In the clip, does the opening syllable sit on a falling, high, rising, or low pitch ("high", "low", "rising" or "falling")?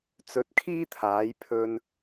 rising